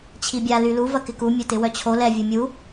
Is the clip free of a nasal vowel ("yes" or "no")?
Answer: yes